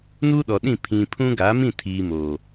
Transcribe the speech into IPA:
n uː˦ ɗ ɔ˨ ɗ ĩ˦˨ pʰ ĩ˨ pʰ ũ˦ ɡ aː˨˦ m ĩ˦˨ tʰ iː˨ m oː˨

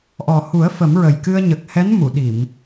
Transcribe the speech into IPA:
ʔ ɔ˨˩ h u˨˩˦ ə̯ f ə˨˩˦ m ɹ ə˨˩ j k ɨ˧ ə̯ ɲ ə˨˩ k̚ h ɛ˧˥ n m u˨˩˨ ɗ i˨˩˨ m

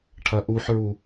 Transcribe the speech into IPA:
ʈʰ ɐ ʔ u ħ ɹ u

